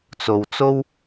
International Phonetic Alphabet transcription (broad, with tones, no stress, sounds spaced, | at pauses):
t͡s o˧ w t͡s o˥ w